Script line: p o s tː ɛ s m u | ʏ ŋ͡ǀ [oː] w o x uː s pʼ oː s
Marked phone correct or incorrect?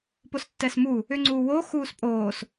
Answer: incorrect